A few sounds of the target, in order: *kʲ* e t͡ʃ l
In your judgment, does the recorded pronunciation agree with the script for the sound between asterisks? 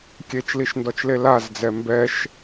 yes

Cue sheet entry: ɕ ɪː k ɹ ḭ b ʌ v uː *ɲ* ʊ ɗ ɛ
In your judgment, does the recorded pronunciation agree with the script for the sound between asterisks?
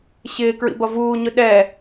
yes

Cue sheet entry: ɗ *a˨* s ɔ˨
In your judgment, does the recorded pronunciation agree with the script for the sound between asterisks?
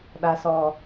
yes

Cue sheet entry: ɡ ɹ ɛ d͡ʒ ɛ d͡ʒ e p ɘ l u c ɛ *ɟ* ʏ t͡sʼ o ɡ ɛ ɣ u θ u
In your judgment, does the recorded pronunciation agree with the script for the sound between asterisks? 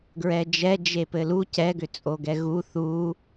no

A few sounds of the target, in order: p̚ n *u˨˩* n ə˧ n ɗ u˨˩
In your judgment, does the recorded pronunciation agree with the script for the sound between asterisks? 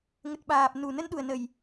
yes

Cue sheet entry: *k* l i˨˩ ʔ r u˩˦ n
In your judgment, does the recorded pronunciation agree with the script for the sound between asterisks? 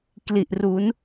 yes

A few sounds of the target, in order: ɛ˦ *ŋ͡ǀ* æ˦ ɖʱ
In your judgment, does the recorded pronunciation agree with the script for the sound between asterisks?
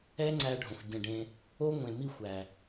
yes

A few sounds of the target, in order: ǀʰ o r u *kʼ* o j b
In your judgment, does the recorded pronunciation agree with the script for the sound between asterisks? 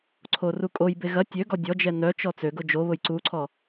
yes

